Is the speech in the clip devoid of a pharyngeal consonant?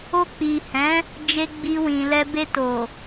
yes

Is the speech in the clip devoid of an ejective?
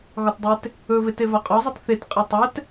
no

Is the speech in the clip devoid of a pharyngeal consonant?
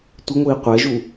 yes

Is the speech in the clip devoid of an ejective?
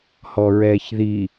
yes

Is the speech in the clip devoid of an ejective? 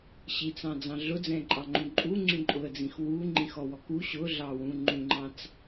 no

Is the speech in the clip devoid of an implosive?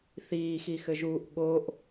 no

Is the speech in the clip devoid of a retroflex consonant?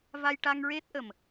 no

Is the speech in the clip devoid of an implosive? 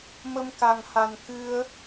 yes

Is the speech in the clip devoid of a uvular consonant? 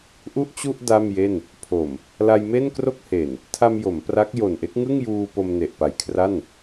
yes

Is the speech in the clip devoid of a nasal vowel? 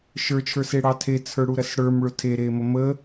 yes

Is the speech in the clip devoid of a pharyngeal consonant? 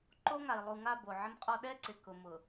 no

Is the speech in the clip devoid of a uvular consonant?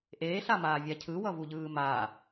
yes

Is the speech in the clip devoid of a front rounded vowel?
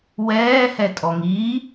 yes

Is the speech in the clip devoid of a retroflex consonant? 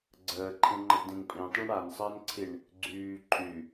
no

